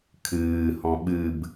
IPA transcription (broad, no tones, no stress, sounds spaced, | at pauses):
kʰ ɨː h ɔ̃ ɓ ɨ b